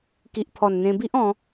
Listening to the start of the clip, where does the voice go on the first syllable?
low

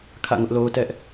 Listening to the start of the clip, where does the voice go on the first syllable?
falling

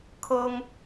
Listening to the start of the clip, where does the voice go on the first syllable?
high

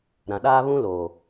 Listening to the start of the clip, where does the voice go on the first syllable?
low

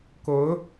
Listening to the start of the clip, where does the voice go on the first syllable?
rising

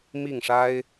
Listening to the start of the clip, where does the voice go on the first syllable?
falling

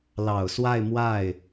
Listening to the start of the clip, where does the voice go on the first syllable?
low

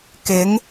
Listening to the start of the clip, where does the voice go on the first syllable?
rising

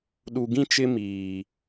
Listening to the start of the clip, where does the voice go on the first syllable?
low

